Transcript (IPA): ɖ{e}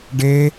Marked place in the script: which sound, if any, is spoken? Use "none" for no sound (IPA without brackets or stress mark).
e